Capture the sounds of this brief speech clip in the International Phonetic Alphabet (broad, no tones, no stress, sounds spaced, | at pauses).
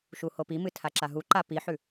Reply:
ʃ u h o p i m ɨ tʰ a ǁ a ɦ u ǃ a p i ħ ʉ